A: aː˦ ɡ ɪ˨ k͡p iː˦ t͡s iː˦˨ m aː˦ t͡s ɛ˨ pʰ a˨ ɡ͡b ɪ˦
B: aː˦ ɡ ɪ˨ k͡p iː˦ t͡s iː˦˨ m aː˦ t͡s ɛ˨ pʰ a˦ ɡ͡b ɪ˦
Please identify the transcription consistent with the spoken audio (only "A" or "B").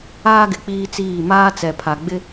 A